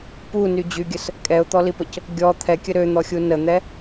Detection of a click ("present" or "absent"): absent